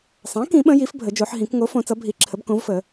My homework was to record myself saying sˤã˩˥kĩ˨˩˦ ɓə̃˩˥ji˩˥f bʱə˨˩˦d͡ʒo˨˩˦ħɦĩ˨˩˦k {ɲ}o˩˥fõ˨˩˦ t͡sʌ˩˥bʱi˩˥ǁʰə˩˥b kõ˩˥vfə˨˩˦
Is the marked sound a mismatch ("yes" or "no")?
yes